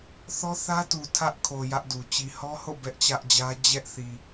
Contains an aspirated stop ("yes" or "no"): yes